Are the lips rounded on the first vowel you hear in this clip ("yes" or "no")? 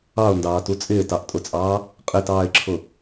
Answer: no